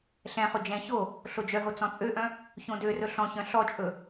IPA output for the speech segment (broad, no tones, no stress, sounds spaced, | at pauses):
ɬ ɛ̃ χ o d͡ʒ ɛ̃ ç o | ɬ o d͡ʒ œ ɦ o t͡s ɔ̃ t͡sʼ ø ʔ œ̃ | ç õ d ø r ɵ ɬ ɔ̃ ç œ̃ ɬ ɔ t͡ʃʼ ɵ